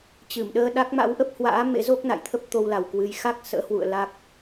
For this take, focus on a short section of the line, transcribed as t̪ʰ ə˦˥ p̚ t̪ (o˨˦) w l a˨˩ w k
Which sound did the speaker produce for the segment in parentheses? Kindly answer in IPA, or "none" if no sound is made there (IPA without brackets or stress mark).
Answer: o˧